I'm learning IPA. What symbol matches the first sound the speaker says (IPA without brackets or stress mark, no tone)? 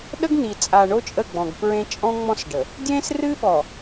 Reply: ɗ